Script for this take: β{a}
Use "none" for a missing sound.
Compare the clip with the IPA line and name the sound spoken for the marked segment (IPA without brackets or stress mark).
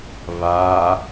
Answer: a